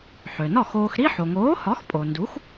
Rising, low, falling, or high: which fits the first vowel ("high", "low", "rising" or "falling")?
low